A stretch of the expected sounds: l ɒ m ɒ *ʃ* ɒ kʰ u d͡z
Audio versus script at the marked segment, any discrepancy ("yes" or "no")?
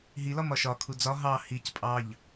no